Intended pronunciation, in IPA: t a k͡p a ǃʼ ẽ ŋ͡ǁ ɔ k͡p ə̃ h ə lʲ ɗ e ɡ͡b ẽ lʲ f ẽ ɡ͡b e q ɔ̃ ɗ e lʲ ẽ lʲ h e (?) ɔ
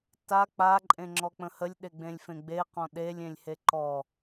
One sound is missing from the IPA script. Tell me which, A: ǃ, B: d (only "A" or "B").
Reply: A